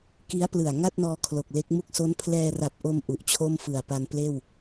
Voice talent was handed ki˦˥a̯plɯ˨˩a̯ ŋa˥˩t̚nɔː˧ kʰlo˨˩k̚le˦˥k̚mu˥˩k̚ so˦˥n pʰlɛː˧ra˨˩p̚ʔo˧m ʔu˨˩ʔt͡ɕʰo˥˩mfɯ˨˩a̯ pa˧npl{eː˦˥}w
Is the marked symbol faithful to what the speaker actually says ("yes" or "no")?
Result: no